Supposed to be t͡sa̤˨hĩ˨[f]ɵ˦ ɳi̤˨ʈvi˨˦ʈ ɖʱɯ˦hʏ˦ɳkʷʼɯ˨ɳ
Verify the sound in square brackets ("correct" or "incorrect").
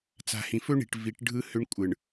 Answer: correct